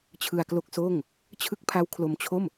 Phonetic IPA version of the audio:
t͡ɕʰ ɯ˧ a̯ k l o˦˥ k̚ s oː˥˩ ŋ | t͡ɕʰ ɯ˦˥ k̚ pʰ a˦˥ w kʰ l o˧ m t͡ɕʰ o˥˩ m

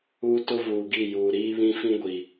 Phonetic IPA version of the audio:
uː˦ t ʊ˦ v uː˨ ɡ i˦˨ j uː˨ ɾ iː˦ β ĩ˦ f ĩ˦ ɡʷ i˨

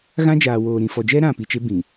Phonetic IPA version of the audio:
ɣ ã˦ d͡ʒ aː˨ w oː˨ ɾ ĩ˨ f ɔ˨ d͡ʒ ɛ˦ ɾ ã˦˨ p i˨ t͡ʃ e˦ b ĩ˨

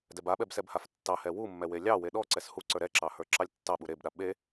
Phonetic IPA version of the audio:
d ɛ b a ɓ ɛ b s ɛ b h a f tː ɑ h ɛ w u mː ɛ w e lʲ ɑ w e ɗ ɔ ǀ ɛ s h u ǀ ə˞ ɾ ɛ ǁ ɑ h ə˞ ǁ ɑ lʲ tː ɑ ɓ u ɾ e b ɗ a ɓ e

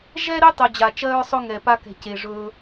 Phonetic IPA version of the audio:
ʒ ɛ˦ ɾ e˦ tˤ œ˨ d͡ʑ a˩ t͡ʃ ɜ˦ ɹ sˤ ɵ˥ ŋ ɛ˨ p a˦ k ɛ̤˨ c e˩ ʐ ɵː˨

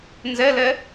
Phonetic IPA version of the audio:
n z ɛ l ɛ

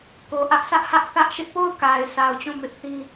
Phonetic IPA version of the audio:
k o˨ ʔ ä˦ ʔ s ä˦ ʔ h ä˦ ʔ θ ä˦ ʔ ʃ ɪ˦ ʔ p o˦˨ ʊ̯ k a˨ ɪ̯ s a˨ ʊ̯ t͡ɕ ũ˦˨ m ɪ˦ ʔ θ ĩ˦

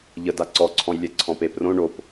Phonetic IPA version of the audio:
ʎ ə d a ǀ ɔ ǀʰ ɔ̃ j lʲ ɛ ǀʰ ɔ̃ p e p r õ ɳ o p

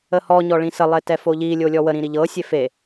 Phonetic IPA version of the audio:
ə h ɔ ɲ ɔ ɭ ĩ s ə lˠ e t ɛ f o ʎ i lʲ o lʲ ɔ w ə ɾ ĩ ɾ i ʎ ɤ sʲ e f e

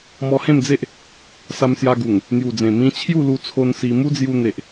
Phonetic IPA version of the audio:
m ɔ˧ h ẽ˥˧ m d͡z e˦ ʔ | s a˧ m s j a˧ ɡ u˨˩ ŋ | n̪ j u˨˩ d͡z ẽ˨˩ m ĩ˧ t͡ɕʰ j u˥˧ l u˧ t͡sʰ o˧ n s i˧ m u˦ d͡z j u˧ n̪ e˨ ʔ

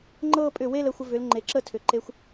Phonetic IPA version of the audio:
ŋ͡ǃ ɤ˥˧ pʼ ʏ˧˩ w e˥˧ l ə˩˧ xʷ ə˧ v ʏ˩˧ l ŋ͡ǃ e˩˧ ǁ ə˥˧ tʰ ʏ˩˧ ǃ e˧ xʷ

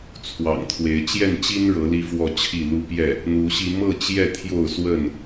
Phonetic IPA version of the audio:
t͡sʰ w ɑ̰˨˩ ŋ t̪ʰ w e˨˦ ɪ̯ t͡ɕ j ɛ˥˨ n t͡ɕ i˦ n ɻ ɤ˨˦ l i˦ f w ɔ˥˨ t͡ɕʰ i˥˨ l u˦ p j ɛ˥˨ | n̪ u˨˦ ɕ i˧ m ɤ˥˨ t͡ɕ j ɛ˥˨ t̪ʰ j o˥˨ ʊ̯ s w ə˥˨ n

